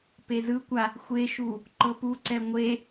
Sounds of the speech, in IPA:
pezɯkʷa | xʷeʃu | ǃɤpuǀɛ ŋʷe

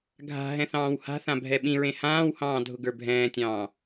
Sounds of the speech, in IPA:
ɡʱa̤ ɦɛ̃θɑ̃ːwha̤θã bʱɛɓĩɹẽ hãːwhɑ̃ː dʱʊɡə˞bʱɛ̃ːtʲɑ̃ː

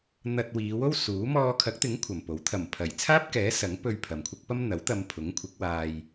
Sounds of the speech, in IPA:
n̪ɐ˧t̚wiː˨˧wo˥w suː˨˥ mɔː˧kʰɐ˨˥k̚t̪ɪ˨˥ŋ kʷʰɐ˨mpo˨˥w t̪ʰɐ˨˩mpʰɐ˨˩jt͡sʰaː˥p̚kɛː˨˥ sɐ˨˥ŋpɵ˧ɥ pʰɐ˨mkʷʰɪ˥k̚ pɐ˥mn̪ɐ˨˥wt̪ɐ˧mpʰʊ˨˥ŋ kʷʰɪ˨˥k̚waː˧j

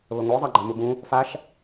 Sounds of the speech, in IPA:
βəŋʷɯ zˤɑɡ͡ǃamubũ | faʃ

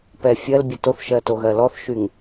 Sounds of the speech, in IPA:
pɛfʲɜlbʲə toθʃɜ toɣɜlɔθʃyŋ

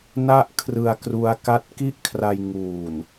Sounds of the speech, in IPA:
na˦˥ʔ kʰrɯ˧a̯kru˦˥a̯ ka˦˥t̚ki˥˩ʔkʰra˧j ŋuː˨˩n

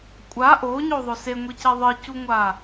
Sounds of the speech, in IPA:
kʷʼa ʔoːɲoːðˤɵ seŋʷice ðˤɨcuŋʷaː

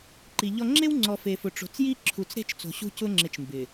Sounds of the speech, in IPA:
ǃi˨ʎɔ˦ ŋ͡ǁe˦wŋ͡ǀɔ˨ fe˨fʊ˨ʈ͡ʂo̤˨t͡sji˦ ǁʰu˨t͡sɾe̤˦t͡ʃ t͡so̤˨ɕṳ˦cʊ˦ŋ͡ǁɪ˨t͡ʃ mbɪ˨

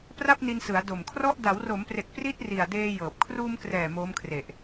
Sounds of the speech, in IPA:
pra˥˩p̚ni˧nsɯ˩˦a̯ do˨˩mkʰrɔ˥˩ʔ da˩˦wro˩˦mpre˨˩k̚ pri˥˩t̚ri˨˩a̯deː˧ jɤː˨˩p̚ kʰruː˧mkrɛː˨˩ moː˦˥mkʰre˨˩ʔ

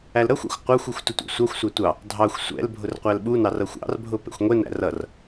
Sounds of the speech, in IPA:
ælɾʌxʷæ̰xʷ qʷɑxʷuxʷ tʊtʷɛ̰sʷɑxʷsʷæ tʷɑ | dʱɑxʷ sʷɛ̰l bʱʊrqʷælɓunɑr ʌxʷɑ̰rbʱʊ pɛ̰xʷŋʷɛnæ̰r ʌr

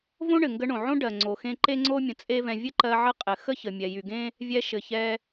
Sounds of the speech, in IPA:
võ˥ɳɘ˩ŋɡə˧ɳõ˩ ʕõ˥ɖɜ˩ŋ͡ǀo˩xẽ˧ ǃe˥ŋ͡ǀo˥mʲə̃˩ t͡sʼe˥vɛ̃˧ vʲɘ˥ǃɜ˧ ʕə˥qʼɘ˩ xə˥çə˩ mʲɛ˩jy˩ɡẽ˥ | vʲɛ˧ʃɘ˩ çɛ˧

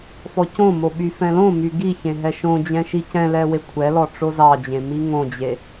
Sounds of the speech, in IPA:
fɔcõmo ɓyfɛ̃lõmy ɡiçẽ ɦɛʃõd͡ʑɛ̃ ʃicɛ̃lɛ wekʷʰɛlɔ ʈ͡ʂozɑd͡ʑẽ miŋõd͡ʑe

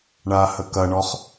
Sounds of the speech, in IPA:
ɳahəkɐɳɔχ

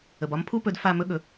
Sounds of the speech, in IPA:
ə˩bɒ˧mpʰu˥pɵ˧d fa˥˩mɵ˥ɠɵ˩˥

